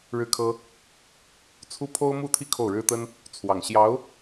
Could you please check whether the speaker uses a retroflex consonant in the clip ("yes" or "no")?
yes